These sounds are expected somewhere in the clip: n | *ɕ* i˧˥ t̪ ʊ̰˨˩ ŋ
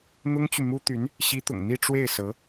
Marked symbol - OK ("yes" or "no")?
yes